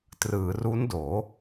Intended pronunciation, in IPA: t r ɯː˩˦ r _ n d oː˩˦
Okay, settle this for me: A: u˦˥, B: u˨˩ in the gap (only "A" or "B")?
A